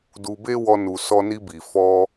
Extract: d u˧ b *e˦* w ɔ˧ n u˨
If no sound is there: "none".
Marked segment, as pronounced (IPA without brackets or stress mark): e˦